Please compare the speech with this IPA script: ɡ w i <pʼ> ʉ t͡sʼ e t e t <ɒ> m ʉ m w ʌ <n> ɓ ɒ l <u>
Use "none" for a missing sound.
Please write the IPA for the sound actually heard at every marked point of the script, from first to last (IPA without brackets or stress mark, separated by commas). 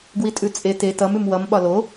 tʼ, ʌ, m, o